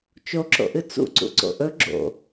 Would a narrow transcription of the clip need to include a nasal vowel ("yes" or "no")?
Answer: no